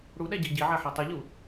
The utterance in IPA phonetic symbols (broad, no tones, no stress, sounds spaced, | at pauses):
ɽ u ɗ æ ɟ i ɟ i ʕ æ ħ æ tˤ i ʎ u